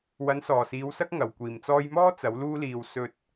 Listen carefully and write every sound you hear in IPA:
w ɐ˨˥ n s ɔː˨˩ s iː˨˧ w s ɐ˥ k̚ ŋ ɐ˨˩ w kʷ iː˨˩ m t͡s ɔː˧ j m ɔː˥ t͡s ɐ˨˥ w l uː˥ l iː˧ w s ɵ˧ t̚

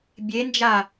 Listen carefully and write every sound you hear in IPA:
bʲ e n d͡ʒ a

